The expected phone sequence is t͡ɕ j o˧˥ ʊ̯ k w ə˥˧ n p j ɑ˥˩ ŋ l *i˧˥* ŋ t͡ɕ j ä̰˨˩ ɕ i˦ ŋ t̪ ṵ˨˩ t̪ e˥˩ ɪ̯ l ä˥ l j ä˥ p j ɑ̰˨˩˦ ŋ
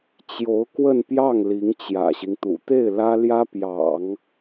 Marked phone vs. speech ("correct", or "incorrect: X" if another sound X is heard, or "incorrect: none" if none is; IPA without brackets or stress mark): correct